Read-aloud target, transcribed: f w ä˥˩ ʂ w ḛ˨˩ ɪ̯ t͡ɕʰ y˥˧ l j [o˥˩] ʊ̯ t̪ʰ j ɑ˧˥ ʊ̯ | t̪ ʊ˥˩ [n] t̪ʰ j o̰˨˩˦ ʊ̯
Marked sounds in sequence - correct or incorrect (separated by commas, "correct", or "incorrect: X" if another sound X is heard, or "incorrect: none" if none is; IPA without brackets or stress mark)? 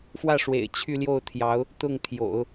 correct, incorrect: ŋ